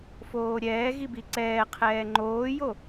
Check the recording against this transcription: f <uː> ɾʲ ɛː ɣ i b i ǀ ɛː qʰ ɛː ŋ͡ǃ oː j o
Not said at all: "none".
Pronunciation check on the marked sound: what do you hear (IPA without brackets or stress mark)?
oː